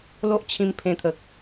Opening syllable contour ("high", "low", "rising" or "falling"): high